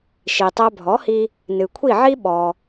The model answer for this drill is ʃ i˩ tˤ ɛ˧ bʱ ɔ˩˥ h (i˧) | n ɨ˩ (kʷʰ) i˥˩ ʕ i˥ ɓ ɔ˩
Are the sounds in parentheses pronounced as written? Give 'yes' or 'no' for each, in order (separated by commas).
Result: yes, yes